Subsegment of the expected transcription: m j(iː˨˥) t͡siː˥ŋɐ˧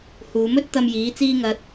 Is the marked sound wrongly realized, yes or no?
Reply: no